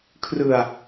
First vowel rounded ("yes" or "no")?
no